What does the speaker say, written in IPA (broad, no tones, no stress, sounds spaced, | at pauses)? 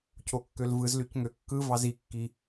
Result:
cʰ o kː ø l v ɯ z l y c ŋ ø kː ɯ v ɑ z i kː i